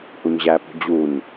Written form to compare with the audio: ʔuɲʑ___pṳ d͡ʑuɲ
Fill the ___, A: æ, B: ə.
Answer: A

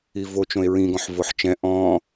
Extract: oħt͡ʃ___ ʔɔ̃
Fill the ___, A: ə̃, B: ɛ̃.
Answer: B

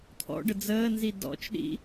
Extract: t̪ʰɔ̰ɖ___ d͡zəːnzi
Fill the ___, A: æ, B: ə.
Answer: B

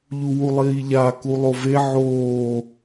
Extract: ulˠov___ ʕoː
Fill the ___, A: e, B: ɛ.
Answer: A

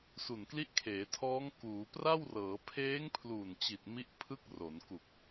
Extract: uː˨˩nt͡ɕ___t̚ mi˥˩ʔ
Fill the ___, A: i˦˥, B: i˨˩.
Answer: B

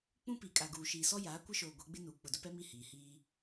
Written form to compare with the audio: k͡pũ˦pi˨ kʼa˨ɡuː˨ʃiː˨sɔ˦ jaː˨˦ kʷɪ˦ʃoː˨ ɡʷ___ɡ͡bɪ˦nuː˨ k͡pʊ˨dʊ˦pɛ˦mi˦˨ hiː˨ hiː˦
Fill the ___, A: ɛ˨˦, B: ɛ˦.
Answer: A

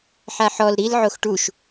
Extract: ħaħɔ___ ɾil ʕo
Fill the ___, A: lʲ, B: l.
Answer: B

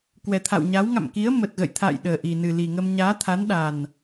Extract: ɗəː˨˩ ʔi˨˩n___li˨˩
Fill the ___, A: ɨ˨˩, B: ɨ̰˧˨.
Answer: A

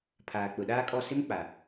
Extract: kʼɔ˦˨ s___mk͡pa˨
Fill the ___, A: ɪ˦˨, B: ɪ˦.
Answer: B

